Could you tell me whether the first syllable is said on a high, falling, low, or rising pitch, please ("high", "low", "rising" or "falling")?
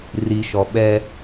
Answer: low